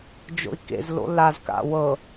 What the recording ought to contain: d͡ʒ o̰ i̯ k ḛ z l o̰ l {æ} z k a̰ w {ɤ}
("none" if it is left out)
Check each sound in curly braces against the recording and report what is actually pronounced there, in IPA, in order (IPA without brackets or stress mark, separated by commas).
a, ɤ